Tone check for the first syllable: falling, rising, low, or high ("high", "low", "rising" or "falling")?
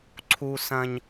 high